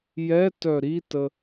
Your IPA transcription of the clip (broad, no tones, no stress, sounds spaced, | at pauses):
j ɛ t œ ɾ i t ə